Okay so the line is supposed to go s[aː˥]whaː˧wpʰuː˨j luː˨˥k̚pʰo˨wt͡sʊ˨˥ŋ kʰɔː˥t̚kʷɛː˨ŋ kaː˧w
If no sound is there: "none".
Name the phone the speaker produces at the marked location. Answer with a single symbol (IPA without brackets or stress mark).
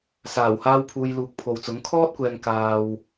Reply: aː˨˩